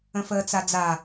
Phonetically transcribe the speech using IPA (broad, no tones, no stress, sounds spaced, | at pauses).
ə̃ f əː t͡s a d͡z a